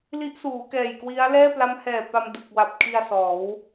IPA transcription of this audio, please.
li˦˥ʔsuː˩˦ kɛː˨˩jkwi˦˥a̯ lɛː˥˩pla˦˥mhɛː˨˩pa˧m dɯ˨˩k̚wa˨˩p̚ kʰi˧a̯ sɔː˩˦w

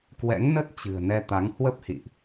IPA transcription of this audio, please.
kwɛ̰˧˥ŋnə˦˥t̚t͡ɕɨ̤˨˩ə̯ nɛ˧t̪a˨˦ŋ hwə˦˥p̚hḭ˧˨ʔ

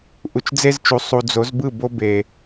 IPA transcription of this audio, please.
ʔu˨t͡ʃd͡ze˦zt͡ʃu˨ sˤu˨d͡zo˨˦zbɯ˦˨ bo˦be˨

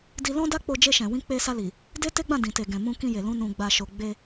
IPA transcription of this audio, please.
di˧lɔ̃˦da˦k͡po˧ d͡ʒe˧ʃɛ̃˨wĩ˧ k͡pe˧sa˧li˨ | de˦te˦ɡ͡bã˦˨ dĩ˨te˨ɡɛ̃˨ mũ˧kĩ˧je˨lũ˧ nũ˨ɡ͡ba˨ʃo˨ ɡ͡be˧

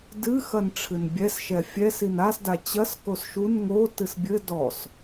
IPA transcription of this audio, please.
dɨxɐnʈ͡ʂʰɨn bʲɛsʃɛ fʲɛsin asda t͡ɕɐs kosʃun ŋo tɨsbʲɘ dɔs

